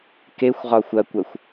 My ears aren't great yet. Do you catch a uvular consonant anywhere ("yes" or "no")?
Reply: yes